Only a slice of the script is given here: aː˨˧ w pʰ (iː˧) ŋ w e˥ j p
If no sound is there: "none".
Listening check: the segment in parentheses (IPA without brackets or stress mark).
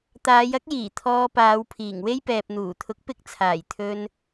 iː˨˩